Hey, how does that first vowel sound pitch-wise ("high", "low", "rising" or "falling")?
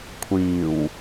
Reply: low